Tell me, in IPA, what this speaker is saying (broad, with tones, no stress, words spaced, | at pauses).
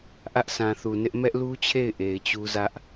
ʔä˦ʔsã˨θu˨nɪ˦ʔ mɛ˦ʔlu˦t͡ɕʰe˦˨ɪ̯ ʔe˨ɪ̯t͡ɕu˦zä˦ʔ